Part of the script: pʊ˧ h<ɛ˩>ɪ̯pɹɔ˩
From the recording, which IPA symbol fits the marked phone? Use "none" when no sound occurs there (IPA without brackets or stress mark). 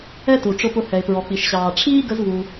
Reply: ɛ˩